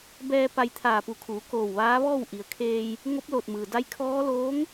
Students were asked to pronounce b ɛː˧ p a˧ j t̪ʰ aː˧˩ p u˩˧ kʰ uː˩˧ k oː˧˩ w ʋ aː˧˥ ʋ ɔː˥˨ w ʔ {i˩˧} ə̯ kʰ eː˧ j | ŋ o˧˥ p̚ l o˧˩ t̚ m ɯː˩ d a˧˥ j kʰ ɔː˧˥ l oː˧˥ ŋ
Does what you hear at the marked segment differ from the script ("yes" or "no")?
no